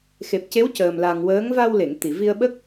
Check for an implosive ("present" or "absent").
present